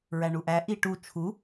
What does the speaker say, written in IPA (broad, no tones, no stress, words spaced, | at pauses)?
ɹæɳuʔæ ʔiʈu t͡ʃʰu